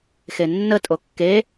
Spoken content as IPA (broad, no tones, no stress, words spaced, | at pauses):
xenːə tʼokːe